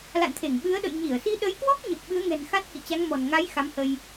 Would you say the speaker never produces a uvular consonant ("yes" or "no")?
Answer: yes